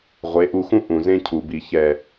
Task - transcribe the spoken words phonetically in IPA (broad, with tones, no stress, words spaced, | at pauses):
ʁʷe˨˦ʔu˧xũ˦ ʔũ˨zẽ˦cʰu˨bi˨ çɛ˨